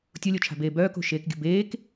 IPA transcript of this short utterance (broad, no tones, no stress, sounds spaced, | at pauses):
tʲ o lʲ o t͡ʃʰ a̤ b eː b œː k o̤ ʃ eː k ɡʲ ə̤ b eː k